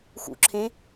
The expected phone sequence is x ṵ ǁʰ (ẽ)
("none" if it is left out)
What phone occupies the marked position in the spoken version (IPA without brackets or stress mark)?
ẽ